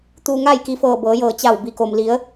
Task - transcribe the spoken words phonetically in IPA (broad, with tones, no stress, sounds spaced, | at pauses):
t̪ uː˧ ŋ aː˥˨ j k i˧ f ɤː˧˩ b ɤː˩˧ j ɤː˧˩ t͡ɕ a˧˩ w b i˩ k o˩ m l i˩˧ ə̯